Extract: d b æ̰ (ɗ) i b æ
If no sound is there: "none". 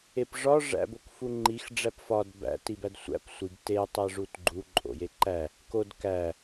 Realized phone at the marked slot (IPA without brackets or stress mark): t